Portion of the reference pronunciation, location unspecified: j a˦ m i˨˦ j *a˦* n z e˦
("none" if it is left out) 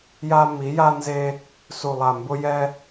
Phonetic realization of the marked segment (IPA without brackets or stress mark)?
a˦